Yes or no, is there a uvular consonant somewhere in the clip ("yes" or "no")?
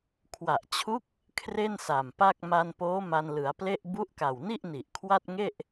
no